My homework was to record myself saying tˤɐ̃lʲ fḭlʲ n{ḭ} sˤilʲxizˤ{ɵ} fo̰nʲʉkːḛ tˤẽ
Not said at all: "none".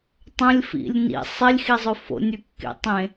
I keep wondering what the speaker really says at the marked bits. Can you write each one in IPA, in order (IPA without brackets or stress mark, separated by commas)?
ḭ, ɵ